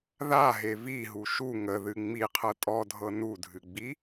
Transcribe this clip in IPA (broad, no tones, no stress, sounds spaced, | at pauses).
ð a ɦ e v i ɦ u ʃ u ŋ ə ð ɨ ŋ͡m i qʰ ɤ tʼ ɔ dʱ ɤ n u dʱ ɨ ɡ͡b i